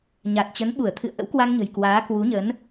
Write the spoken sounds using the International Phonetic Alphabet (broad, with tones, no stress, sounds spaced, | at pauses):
ɲ a˨˩ t̚ t͡ɕ ə˨˦ n ɓ u˧˩ ə̯ t̪ʰ ɨ̰˧˨ ə̯ ʔ ə̰˧˥ w k w a˧ ŋ ɲ ə̤˨˩ j k w aː˨˦ k w u˨˦ ɲ ə˨˦ n